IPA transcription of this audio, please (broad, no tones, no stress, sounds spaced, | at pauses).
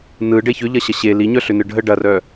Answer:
n ɯ ɖ e ç ʏ ʎ ɐ ɕ ɐ ɕ e l i ɲ œ ɬ ʏ n ɯ ɖʱ ə ɖ ɐ r œ